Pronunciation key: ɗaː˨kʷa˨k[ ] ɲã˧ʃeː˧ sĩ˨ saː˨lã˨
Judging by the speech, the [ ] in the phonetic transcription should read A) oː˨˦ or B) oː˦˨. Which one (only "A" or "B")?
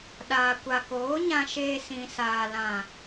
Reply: A